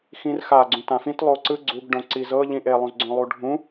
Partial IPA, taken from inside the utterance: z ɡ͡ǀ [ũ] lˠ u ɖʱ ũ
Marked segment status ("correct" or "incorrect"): incorrect